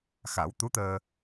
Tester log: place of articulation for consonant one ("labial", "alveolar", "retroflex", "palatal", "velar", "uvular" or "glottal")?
velar